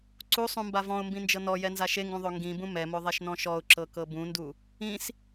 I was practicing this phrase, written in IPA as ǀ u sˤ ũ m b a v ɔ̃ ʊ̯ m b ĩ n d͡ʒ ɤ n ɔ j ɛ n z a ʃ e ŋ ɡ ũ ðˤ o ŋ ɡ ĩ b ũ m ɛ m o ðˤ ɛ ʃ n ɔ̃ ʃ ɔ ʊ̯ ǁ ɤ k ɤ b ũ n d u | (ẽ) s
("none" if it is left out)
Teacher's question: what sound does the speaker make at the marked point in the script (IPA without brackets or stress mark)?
ĩ